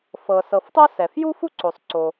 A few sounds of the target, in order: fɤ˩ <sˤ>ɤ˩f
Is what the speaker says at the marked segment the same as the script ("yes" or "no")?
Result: no